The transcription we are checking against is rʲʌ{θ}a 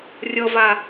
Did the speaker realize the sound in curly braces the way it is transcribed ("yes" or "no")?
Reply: no